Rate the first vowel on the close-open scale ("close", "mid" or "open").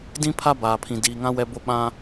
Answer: close